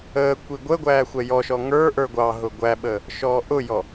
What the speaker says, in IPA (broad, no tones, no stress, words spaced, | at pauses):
əː kʷiɡʷəɡʷæː xʷɛjɔʃɔ ŋə˞ ʔə˞ɡʷɑɦʊ ɡʷæɓə | ʃɔːʔʊjɔ